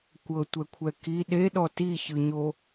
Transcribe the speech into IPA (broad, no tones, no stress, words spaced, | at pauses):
kʷɤtʷɛkʷʰɛ ki ɗeɗɔ tiçɯɲo